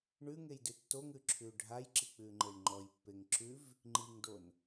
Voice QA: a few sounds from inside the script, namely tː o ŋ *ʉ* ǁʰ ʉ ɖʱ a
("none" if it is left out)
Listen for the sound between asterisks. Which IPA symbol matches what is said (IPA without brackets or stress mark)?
ʉ